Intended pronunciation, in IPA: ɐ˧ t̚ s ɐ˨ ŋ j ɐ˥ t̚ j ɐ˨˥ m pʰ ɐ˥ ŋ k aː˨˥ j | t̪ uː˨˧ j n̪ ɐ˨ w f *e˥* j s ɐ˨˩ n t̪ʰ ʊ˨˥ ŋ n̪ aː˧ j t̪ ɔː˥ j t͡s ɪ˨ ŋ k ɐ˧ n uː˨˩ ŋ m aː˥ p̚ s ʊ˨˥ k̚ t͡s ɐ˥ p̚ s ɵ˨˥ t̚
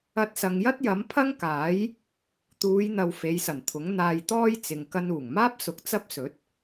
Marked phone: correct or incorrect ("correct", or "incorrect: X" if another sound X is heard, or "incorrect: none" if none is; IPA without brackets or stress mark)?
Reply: incorrect: e˨˧